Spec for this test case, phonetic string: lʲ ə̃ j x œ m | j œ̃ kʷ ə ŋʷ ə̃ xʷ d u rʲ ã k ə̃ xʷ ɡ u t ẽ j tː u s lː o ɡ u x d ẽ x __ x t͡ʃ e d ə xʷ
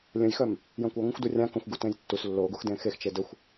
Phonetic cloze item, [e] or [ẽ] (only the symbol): e